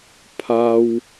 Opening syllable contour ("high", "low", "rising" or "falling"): high